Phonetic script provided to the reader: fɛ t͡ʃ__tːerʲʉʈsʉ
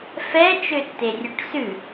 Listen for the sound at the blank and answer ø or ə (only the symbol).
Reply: ø